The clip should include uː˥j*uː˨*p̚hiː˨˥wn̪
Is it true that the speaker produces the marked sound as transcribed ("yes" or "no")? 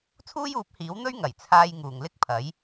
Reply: no